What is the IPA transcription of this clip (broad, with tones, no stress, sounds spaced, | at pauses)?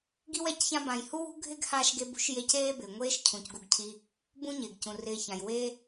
ɡ i˥ w ɛ˨ c ç ã˥ b ã˨ j h u˥ w ṳ˥ ɡʱ ɪ˥ ɡ h a˦ ʃ ɡ e˥ b ṳ˥ ʃ j e˥ c eː˦ b ɪː˩ ŋʷ eː˥ ʃ cʰ ũ˩ c ɡ u˨ ɡ cʰ i˨ | b ũ˥ ɲ ɪː˩ ɡ c ũ˩ r ɪː˨ ç ã˩ j w eː˦